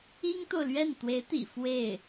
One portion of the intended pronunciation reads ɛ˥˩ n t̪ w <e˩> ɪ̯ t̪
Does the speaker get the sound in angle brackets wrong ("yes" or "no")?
yes